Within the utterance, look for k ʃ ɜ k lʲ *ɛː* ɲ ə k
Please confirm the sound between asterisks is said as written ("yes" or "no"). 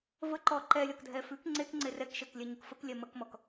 no